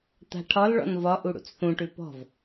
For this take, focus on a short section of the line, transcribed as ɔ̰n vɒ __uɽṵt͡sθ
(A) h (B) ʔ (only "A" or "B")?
B